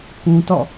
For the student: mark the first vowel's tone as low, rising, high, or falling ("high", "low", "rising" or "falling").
high